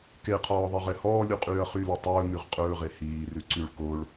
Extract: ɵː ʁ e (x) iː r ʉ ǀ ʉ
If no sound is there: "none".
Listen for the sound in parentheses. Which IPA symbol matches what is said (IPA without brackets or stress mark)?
h